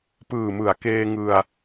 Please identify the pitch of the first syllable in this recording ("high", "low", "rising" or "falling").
low